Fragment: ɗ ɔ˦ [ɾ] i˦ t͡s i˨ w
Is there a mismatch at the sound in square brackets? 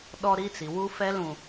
no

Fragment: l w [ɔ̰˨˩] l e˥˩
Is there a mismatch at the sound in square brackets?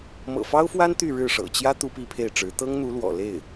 no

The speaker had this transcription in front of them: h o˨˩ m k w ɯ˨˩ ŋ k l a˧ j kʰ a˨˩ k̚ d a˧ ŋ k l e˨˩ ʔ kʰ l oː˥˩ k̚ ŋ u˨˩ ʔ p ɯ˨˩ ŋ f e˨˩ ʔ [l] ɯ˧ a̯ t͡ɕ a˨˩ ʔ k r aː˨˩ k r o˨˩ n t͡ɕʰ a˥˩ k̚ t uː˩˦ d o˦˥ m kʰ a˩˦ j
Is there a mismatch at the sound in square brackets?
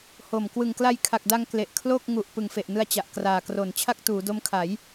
yes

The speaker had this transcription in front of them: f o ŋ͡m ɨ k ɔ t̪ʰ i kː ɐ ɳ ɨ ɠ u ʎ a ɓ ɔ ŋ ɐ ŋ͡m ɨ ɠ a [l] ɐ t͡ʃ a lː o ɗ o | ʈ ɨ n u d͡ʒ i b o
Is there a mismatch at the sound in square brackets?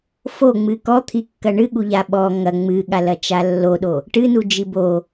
no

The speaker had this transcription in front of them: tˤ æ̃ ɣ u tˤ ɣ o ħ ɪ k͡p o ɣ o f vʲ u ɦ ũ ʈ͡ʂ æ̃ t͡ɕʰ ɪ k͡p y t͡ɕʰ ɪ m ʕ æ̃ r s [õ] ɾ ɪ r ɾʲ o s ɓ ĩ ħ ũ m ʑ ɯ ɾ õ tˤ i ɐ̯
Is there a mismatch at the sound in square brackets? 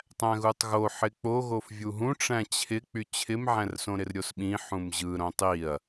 no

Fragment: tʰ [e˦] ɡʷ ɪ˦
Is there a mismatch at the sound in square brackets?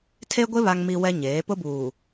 no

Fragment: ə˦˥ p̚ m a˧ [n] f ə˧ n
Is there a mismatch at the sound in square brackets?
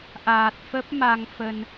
yes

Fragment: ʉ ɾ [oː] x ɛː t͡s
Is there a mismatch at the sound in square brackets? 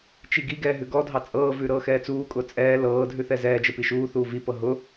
yes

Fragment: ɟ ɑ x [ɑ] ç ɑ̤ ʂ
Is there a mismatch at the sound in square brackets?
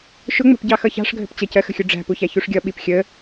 yes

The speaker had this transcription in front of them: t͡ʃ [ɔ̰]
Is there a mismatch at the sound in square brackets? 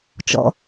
no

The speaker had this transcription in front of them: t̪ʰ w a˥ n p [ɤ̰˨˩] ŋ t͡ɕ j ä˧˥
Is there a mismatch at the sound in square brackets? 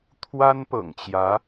no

